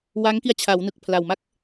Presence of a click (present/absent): absent